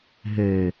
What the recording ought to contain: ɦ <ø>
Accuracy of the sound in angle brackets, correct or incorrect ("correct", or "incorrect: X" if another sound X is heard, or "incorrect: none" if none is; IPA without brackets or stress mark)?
correct